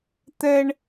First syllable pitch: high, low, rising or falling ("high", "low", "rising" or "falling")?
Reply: high